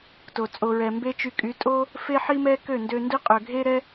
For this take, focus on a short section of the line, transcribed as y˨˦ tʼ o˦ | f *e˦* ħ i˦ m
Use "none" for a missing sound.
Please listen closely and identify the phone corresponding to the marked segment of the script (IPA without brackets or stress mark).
e˦